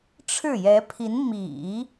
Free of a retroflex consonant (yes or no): no